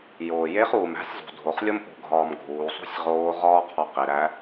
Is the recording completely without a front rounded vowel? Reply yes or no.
yes